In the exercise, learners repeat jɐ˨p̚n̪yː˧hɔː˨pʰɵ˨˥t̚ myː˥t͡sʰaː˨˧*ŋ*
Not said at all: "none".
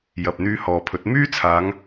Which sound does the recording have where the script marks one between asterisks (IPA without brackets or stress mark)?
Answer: ŋ